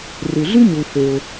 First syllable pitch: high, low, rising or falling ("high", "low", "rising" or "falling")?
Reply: low